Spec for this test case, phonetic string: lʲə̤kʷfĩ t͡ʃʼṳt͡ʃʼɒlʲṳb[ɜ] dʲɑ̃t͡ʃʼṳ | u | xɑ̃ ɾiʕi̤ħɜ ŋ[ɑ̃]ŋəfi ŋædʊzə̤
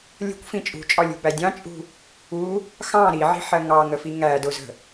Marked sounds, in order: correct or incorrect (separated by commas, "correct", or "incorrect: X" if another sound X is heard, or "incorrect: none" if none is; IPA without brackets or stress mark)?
incorrect: æ, incorrect: ɑ